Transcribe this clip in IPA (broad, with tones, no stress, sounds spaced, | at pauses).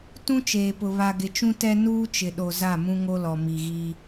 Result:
t ũ˦ t͡ʃ eː˨ p ʊ˨ β a˨ ɡ ɪ˨ t͡ʃ ũ˦ t ɛ˦ n uː˦ t͡ʃ ɪ˨ ɗ o˨ z a˦˨ m ũ˦ ŋ o˦ l ɔ˨ m i˨ ɣ i˦